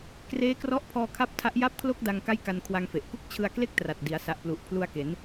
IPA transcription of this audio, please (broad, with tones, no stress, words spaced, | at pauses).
kreː˦˥krɔ˦˥ʔpʰɔː˧kʰa˦˥p̚ tʰa˦˥ʔ ja˥˩p̚kʰlo˥˩k̚da˧ŋ ka˥˩jka˧nkʰwa˧ŋfe˨˩ʔ ku˥˩k̚t͡ɕʰɯ˧a̯ kle˥˩k̚tra˨˩t̚ di˩˦a̯sa˨˩ʔplu˨˩ʔ pʰlu˧a̯ ke˩˦n